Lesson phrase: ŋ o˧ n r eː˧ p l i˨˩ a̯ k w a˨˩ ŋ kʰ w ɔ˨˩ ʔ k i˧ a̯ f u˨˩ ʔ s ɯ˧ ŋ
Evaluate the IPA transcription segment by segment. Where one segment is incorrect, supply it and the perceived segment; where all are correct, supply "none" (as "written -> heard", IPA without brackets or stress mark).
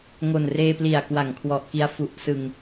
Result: o˧ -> o˨˩